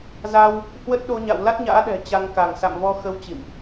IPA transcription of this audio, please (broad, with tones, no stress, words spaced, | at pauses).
za˧w | hwə˦˥t̚ɗo˧ɲa̰˧˨w la˦˥t̚ɲa̰ː˧˥ ɗɛ̤˨˩t͡ɕa˧ŋka˧˩ŋ sa̰˧˨mvɔ˧ xə˧w t͡ɕḭ˧˨mʔ